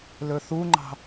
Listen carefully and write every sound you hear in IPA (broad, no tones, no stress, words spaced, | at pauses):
lɵθuŋ͡ǃɑ̤